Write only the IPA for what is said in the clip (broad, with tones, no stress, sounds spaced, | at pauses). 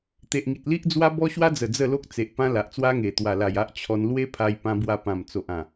t̪ e˨ ʔ ŋ i˨ t̚ l i˦ ʔ d͡z w a˦ b ɔ˦ ɕ w a˦ d͡z ə˨˩ d͡z ə˥˧ l o˦ k̚ t͡s e˨ ʔ p ã˦ l a˨ ʔ t͡s w a˦ ŋ e˨˩ t̪ w a˨˩ l a˨˩ j a˦ ʔ t͡ɕʰ ɔ˧ n l w e˦ pʰ a˧ j p ã˧ b w a˧ p ã˨˩ m t͡s o˨ ʔ ã˨˩